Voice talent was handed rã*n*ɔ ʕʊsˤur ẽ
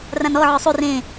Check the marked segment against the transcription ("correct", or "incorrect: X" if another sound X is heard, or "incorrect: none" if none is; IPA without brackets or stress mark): correct